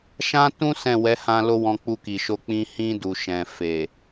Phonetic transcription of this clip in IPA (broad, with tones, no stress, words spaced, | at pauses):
ʃã˦tũ˦ sɛ̃˦˨ wɛ˨˦hã˧ lo˦wɔ̃˧k͡pu˧ki˨ ʃo˧k͡pĩ˧ hĩ˧du˨ʃɛ̃˨ fe˨